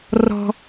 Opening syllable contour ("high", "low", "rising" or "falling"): high